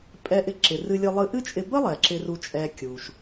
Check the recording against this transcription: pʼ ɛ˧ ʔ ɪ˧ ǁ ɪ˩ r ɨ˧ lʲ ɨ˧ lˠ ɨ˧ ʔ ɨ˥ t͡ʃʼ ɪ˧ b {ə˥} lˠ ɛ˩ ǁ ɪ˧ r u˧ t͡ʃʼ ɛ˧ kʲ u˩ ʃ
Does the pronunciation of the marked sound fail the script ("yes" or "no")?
no